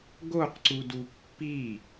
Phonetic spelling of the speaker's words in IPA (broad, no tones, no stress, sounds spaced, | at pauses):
ɡ o q ǀ u d u pː i